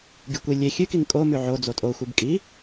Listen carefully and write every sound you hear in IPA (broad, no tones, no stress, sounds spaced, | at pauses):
ɡʲ ɨ kʷ i lʲ e xʲ ʉ k i ŋ kʼ o m ʉ ʕ o d͡z o tʼ o xʷ ɨ b kʼ i